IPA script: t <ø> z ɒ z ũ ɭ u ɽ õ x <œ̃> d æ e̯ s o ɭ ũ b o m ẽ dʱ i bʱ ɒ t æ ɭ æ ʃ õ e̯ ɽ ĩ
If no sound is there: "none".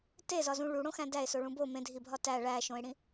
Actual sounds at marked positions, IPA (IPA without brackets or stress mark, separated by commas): e, æ̃